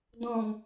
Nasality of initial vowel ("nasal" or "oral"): nasal